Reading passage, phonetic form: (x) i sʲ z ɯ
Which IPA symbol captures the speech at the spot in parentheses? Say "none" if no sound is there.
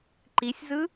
ǃ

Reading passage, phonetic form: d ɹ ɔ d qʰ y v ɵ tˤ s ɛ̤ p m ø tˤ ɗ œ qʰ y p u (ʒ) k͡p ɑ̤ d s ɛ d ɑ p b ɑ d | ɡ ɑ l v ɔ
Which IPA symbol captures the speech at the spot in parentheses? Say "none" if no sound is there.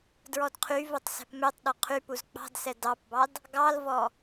z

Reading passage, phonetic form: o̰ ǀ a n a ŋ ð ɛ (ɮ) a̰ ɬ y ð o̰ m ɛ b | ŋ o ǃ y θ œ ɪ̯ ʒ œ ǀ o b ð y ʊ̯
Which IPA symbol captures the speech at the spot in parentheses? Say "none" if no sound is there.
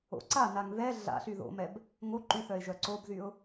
ɮ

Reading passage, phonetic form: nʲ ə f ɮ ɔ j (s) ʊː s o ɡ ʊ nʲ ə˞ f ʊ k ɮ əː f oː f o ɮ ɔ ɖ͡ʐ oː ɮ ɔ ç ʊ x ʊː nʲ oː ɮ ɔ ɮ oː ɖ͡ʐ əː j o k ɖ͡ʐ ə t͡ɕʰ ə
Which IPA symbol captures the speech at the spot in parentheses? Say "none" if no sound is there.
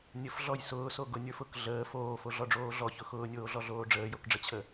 s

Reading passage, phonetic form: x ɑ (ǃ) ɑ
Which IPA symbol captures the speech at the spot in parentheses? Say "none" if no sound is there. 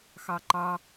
ǃ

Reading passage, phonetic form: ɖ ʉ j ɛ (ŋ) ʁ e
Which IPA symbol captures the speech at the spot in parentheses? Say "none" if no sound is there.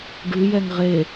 ŋ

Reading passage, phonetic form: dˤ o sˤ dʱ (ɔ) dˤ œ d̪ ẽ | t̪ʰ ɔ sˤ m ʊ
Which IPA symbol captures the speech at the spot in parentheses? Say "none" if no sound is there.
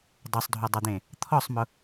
o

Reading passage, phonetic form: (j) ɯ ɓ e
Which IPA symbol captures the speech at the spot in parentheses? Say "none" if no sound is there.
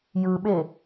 j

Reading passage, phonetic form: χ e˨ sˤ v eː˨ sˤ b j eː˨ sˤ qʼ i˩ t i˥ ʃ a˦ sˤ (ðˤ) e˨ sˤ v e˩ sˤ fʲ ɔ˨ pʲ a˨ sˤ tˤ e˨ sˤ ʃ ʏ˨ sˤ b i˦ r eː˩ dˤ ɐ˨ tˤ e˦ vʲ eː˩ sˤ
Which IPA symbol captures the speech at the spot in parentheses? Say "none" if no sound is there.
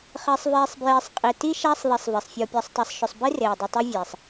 ðˤ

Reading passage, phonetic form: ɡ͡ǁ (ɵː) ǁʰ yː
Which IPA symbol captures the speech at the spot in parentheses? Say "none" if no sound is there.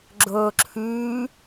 ɵː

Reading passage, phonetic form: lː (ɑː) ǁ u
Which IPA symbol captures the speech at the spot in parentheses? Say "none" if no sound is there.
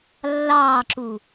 ɑː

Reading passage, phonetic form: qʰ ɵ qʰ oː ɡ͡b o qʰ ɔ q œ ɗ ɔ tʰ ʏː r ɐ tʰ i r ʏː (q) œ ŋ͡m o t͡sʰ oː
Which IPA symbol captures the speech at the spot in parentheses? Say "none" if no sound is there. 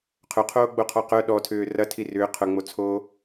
qʰ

